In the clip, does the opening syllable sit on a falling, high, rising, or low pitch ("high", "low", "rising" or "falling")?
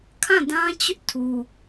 falling